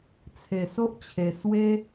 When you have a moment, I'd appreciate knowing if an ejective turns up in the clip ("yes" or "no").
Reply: no